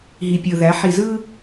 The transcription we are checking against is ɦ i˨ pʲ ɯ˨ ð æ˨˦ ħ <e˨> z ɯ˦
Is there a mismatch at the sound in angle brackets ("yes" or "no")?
yes